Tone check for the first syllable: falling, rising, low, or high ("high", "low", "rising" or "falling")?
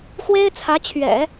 high